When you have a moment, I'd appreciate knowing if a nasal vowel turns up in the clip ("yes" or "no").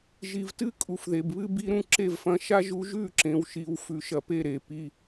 yes